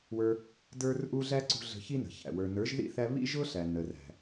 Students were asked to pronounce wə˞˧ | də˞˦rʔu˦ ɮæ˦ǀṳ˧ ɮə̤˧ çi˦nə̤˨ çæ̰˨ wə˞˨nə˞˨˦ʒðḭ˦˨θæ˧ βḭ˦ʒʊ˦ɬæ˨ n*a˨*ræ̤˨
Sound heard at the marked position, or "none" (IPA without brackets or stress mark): ə˨